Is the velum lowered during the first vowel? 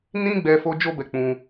yes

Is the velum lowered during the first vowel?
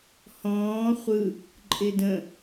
yes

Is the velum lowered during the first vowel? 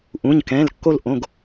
yes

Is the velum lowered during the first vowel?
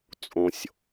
yes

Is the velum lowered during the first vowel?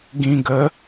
yes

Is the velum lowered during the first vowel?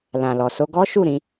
yes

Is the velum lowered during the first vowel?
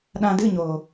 yes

